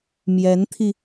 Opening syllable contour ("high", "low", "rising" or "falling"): rising